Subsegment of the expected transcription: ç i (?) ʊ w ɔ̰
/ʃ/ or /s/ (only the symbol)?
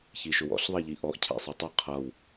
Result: ʃ